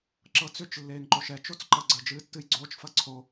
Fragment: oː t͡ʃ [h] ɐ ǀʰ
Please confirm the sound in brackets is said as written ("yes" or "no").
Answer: no